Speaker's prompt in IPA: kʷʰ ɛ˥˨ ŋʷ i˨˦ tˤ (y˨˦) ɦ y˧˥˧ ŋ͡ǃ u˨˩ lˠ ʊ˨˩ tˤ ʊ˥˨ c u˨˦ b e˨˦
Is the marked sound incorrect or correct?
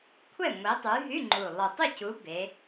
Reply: correct